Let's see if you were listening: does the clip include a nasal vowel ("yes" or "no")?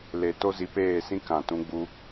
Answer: yes